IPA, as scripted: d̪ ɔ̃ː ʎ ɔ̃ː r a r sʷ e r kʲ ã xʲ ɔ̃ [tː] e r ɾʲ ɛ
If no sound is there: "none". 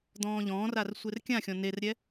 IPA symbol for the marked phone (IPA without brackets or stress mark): n